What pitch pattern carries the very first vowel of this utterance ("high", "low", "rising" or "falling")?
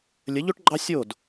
rising